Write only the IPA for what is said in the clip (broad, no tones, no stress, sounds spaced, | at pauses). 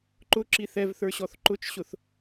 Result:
ǃ ʊ ǁ i θ ɛ v θ ə˞ ɕ ɔ θ ǃ ʊ t͡ʃ ɕ ʊ θ